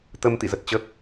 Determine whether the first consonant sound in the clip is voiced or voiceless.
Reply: voiceless